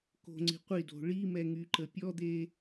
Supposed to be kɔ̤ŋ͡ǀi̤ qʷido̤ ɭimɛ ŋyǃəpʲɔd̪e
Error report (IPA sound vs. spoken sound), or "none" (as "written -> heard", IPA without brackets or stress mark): ɔ̤ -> o̤